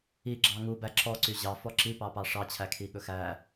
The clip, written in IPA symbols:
i ɡ͡ǁ ɑ ŋ u b æ ǁ ɔ ǀ y ʑ ɑ f ɔ ǁ i p ɑ p ɑ ʂ ɑ t͡ɕʰ æ kʰ i ɠ ɵ x æ

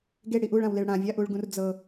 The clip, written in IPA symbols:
ɡ e ɽ i ʔ u ɭ ã w l e ɭ ɽ ã vʲ a ʔ u ɭ ɡ ũ r d͡z ɤ

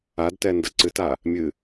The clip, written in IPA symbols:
a d t ɛ n d ɐ ǀ ɨ t a | mʲ ɨ

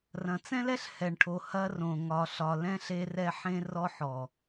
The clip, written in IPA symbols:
r ɐ̃˨ t͡s ɛ̃˦ l ɛ˦ ɬ h ɛ˨ ɳ ʈʰ o˨ h ɐ˦ r õ˨ ŋ ɒ˨ ɬ ɒ˨ l ɛ̃˦ ɬ e˦ r ɛ˦ ħ ẽ˦ r ɔ˦ ħ ɔ˨

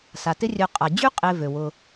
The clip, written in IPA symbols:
s a˩ t ɪ˦ rʲ œ˨ qʼ a˩ d͡ʑ y˥ qʼ e˨ v ø˩ w ʊ˨

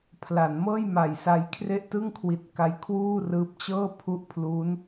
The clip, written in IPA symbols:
pʰ l a˩˦ n m ɤː˥˩ j m a˨˩ j s a˧ j kʰ r e˥˩ ʔ t ɯ˥˩ ŋ kʰ w i˨˩ t̚ k a˦˥ j kʰ w uː˥˩ r ɯː˦˥ p̚ t͡ɕ ɤː˥˩ pʰ u˥˩ ʔ pʰ l uː˦˥ n

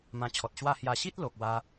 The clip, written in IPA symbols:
m ã˧ t͡ɕʰ ɔ˨ t̚ ɕ w a˥˧ h j a˧ ɕ i˦ t̚ l o˨ k̚ w a˧

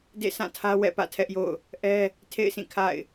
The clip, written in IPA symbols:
d ḛ˦˨ sʰ ã˦˨ tʰ ä˦ w ɛ̰˦˨ p ä̰˦˨ tʰ ɛ˦ ʔ j o̰˦˨ ʊ̯ | ʔ ɛ˦ | tʰ ḛ˦˨ ɪ̯ s ĩ˦˨ kʰ a̰˦˨ ɪ̯

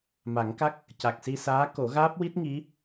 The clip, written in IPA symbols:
m a˨˩˦ ŋ k a˦˥ k̚ | c a˨˩ k̚ s i˧ s aː˧˥ k o˨˩˦ ɣ aː˦˥ p̚ w i˦˥ t̚ ŋ i˧˥

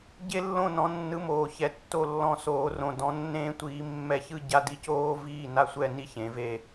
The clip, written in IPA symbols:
ɟ e˥ lː õ˥˧ n ɔ̃˧˥ nː ɯ˧˥ m oː˧ ç ɛ˧˥ tː o˥˧ lː ɔ̃˥˧ s oː˧˥ r õ˧ d ɔ̃˧˥ nː ẽː˥ tʷ iː˧˥ mː ɛ˥˧ ç ɯ˥ ɟ a˥ d i˥˧ c oː˥ v iː˥˧ n a˥˧ sʷ ɛ˥˧ n i˥˧ ç ẽ˧˥ v e˥˧

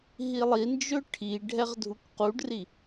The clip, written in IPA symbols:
ɦ i lˠ i n d͡ʒ ɵ ʈʰ i ɖʱ ɛ ʁ dʱ u k q u ɖ r i

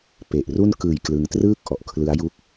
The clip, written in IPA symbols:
p e˨˩ ʔ r u˥˩ n k ɯː˨˩ j k l ɯ˧ ŋ t r ɯː˥˩ k̚ ʔ ɔ˨˩ ʔ kʰ l ɯ˦˥ a̯ j u˥˩ k̚

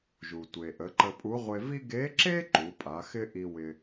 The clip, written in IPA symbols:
ʒ u˩ tʷ e˩ ʔ ə˩˧ ǃ ə˧ pʼ u˧˥ ʁʷ e˧ v i˥ ɡ e˧˥ ǁ e˥ ǃ u˩˧ pʼ a˩˧ x ɪ˥ ʔ i˧ w ɪ˧

